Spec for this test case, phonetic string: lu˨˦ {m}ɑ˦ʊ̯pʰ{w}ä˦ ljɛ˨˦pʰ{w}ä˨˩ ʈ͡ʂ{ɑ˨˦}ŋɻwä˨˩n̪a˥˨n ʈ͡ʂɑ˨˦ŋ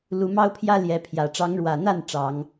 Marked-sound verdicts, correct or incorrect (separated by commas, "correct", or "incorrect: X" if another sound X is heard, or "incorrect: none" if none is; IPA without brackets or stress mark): correct, incorrect: j, incorrect: j, correct